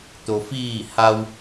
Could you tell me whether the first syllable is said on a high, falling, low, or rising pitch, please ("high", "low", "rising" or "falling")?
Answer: low